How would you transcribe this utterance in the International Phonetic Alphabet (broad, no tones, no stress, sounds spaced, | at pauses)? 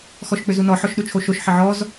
x ɔ ʃ k͡p ʏ z u n ɔ ħ ɔ ʃ ɗ u t͡ʃʰ o ʃ o ʃ ħ ɪ ʕ ɔ z